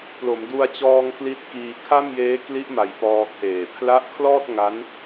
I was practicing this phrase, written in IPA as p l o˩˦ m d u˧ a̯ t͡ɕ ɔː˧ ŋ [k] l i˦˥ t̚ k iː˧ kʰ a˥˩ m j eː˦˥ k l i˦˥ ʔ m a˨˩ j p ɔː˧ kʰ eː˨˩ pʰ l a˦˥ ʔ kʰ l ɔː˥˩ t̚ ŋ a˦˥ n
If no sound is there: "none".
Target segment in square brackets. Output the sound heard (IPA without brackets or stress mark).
k